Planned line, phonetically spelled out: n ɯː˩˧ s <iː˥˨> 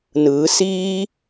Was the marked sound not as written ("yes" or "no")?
yes